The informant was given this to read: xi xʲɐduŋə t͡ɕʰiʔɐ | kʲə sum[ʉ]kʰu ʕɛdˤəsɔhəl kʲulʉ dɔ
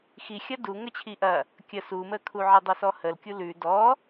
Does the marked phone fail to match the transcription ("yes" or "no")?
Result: yes